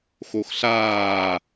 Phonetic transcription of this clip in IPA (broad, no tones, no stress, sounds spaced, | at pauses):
x o x ɬ aː